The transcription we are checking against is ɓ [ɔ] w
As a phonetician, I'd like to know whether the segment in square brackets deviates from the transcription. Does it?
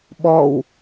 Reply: no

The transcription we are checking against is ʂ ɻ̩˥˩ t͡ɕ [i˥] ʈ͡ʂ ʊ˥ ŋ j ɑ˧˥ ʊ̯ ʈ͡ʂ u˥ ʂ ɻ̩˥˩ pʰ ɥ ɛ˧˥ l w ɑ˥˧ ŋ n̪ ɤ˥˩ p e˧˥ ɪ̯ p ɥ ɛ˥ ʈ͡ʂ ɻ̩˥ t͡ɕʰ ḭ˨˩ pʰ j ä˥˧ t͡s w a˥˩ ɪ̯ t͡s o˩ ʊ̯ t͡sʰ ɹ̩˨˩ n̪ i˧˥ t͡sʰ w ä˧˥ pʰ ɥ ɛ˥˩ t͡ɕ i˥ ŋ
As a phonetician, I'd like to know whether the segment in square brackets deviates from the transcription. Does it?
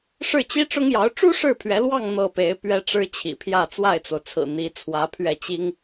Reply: no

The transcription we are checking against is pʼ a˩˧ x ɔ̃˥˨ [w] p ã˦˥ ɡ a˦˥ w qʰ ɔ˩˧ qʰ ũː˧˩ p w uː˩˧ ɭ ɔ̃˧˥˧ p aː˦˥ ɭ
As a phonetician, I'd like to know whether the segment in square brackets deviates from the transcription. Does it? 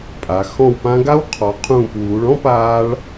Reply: no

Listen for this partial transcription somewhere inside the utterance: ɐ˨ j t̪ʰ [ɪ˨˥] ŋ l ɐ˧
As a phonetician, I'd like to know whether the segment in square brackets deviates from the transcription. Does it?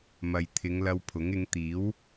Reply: yes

